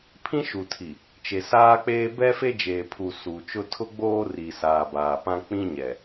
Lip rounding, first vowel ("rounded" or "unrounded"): unrounded